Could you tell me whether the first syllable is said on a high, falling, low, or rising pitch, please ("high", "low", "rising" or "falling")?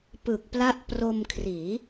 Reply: low